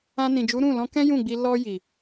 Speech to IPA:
ã˧nĩ˨d͡ʒu˨˦ ɾũ˦˨lɔ̃˧kɛ̃˦ jũ˦˨ɡ͡bi˧ lɔ˧ji˨

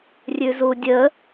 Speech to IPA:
rʲʉzudʲə

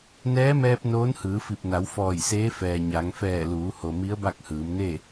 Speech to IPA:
nɛː˧˥mɛː˧p̚ noː˧˥nhɯː˩˧fi˧˩p̚na˩˧w fɔː˧˩jseː˧˥fɛː˩ ɲa˩˧ŋ fɛː˧˩ luː˩˧ho˩ mi˧˥ə̯ba˥˨k̚hɯː˩˧mne˥˨

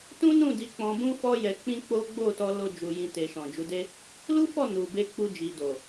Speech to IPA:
tũ˦nũ˦˨di˨˦ k͡pɔ̃˧bũ˦ fɔ˦ jɛ˧k͡pĩ˦k͡po˦ ɡ͡bo˦˨tɔ˧ lo˦ d͡ʒu˧jĩ˧ te˨ʃɔ̃˨d͡ʒu˨˦de˦ | lu˦fɔ˦˨ nu˨be˧ k͡pu˧d͡ʒi˨do˨

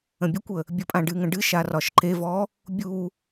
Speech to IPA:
ə̃bʲɤkʷə | bʲəpʼãɖɨŋə̃ ɖɨʃa rɒʃǃevɔ | bʲu

